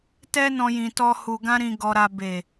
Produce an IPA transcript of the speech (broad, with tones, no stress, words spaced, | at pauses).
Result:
tɛ˦nɔ̃˧jĩ˨tɔ˧ hu˨ɡã˧ɾĩ˨ ɡɔ˨ɾa˨ be˨